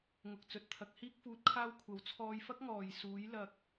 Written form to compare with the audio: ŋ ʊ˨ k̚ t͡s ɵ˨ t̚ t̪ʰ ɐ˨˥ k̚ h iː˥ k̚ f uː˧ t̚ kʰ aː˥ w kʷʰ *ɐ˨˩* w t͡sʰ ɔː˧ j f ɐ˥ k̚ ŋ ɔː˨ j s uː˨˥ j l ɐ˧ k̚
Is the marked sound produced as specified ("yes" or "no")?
no